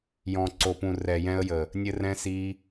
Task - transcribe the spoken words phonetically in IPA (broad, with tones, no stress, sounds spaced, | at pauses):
j ɔ̃˨ ǀ o˨ p ũ˨ r ɛ˨ j ɛ̃˧ ə̯ j ə˨ | nʲ ɘ˧ r ɛ̃˧ s i˧